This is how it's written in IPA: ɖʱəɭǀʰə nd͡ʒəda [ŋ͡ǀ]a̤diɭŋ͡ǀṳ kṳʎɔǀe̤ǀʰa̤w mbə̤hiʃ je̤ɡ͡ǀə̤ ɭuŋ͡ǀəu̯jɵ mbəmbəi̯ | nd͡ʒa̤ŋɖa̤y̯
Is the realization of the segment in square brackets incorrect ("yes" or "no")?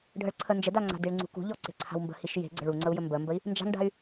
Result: no